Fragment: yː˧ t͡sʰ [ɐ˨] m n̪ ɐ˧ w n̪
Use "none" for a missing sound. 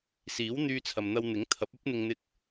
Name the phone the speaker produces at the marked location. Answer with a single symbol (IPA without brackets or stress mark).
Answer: ɐ˨